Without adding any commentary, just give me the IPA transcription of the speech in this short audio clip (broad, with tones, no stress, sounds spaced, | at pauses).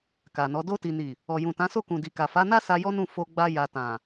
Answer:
k a˨ n ɔ˨˦ d o˧ t i˨ n i˨ | ɔ˨ j ũ˨ t ã˨˦ s o˦˨ k ũ˨ d i˨ k a˨ f a˨˦ n a˦ s a˧ j ɔ˦ n ũ˦˨ f o˧ ɡ͡b a˧ j a˨ t ã˨